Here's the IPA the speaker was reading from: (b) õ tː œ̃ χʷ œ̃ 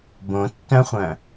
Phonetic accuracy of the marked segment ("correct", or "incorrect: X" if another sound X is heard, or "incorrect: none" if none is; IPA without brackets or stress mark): correct